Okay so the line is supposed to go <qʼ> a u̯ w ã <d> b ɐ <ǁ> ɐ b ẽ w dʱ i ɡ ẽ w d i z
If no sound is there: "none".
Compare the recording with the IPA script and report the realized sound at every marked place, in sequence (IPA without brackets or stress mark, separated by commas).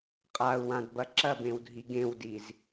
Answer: qʼ, d, ǁ